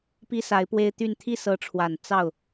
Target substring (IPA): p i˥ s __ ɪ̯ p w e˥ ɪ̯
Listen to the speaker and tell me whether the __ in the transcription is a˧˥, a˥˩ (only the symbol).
a˧˥